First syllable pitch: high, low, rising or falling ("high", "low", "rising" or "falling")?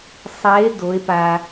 rising